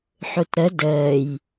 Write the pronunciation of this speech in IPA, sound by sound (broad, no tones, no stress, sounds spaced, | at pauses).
ħ u t ɾ ə d əː j